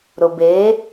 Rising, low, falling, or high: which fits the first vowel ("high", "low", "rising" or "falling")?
low